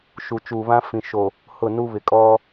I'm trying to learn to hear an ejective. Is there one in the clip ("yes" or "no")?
yes